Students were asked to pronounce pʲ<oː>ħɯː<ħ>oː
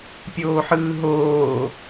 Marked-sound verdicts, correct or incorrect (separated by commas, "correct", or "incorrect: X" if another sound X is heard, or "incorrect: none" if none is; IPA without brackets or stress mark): correct, incorrect: ɦ